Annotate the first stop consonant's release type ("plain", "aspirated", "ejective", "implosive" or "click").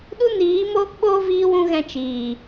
implosive